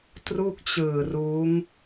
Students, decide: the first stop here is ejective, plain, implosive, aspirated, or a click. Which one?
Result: plain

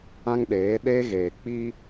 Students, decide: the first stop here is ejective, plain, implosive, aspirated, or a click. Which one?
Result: implosive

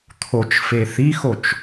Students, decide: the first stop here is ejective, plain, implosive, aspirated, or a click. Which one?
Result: aspirated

